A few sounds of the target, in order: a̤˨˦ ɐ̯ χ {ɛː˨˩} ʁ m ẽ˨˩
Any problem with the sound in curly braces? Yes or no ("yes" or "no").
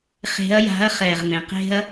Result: no